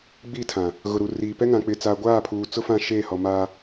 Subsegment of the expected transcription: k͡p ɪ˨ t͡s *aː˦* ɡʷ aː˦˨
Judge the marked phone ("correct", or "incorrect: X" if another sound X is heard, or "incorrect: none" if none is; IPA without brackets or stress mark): incorrect: aː˨